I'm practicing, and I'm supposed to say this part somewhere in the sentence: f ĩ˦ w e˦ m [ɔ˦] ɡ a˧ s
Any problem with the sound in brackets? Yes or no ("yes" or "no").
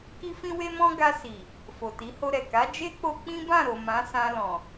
yes